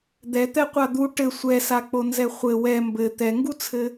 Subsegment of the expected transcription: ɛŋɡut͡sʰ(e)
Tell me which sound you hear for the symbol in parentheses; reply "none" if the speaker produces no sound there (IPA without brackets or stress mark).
ɘ